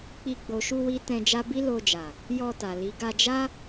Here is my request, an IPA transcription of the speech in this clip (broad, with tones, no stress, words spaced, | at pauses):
k͡pi˧ ɡ͡bo˨ʃu˧ wi˦tɛ̃˧d͡ʒa˦ bi˦lo˧d͡ʒa˨ | jɔ˧ta˨li˨˦ ɡa˧d͡ʒa˦